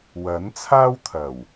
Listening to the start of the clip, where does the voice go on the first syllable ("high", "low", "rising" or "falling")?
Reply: rising